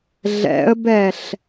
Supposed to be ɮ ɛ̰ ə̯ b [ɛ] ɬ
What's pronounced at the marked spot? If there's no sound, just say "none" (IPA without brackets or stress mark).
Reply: ɛ